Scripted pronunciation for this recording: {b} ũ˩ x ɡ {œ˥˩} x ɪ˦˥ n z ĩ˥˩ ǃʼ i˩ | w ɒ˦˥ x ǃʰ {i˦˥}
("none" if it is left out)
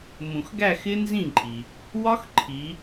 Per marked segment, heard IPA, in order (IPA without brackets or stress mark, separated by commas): m, æ˥˩, i˩˧